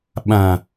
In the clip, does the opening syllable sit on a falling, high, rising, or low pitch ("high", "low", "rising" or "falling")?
low